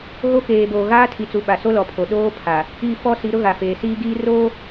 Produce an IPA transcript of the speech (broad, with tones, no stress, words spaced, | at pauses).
ɣo˦keː˨ boː˨ɣaː˦tʰi˨t͡su˨ ɓa˨so˦ lɔ˨pʰo˨ ɗoː˦ pʰa˨ | i˦˨ fɔ˦si˨˦ ɾʊ˦ɣa˨ feː˨siː˦ ɡiː˦roː˦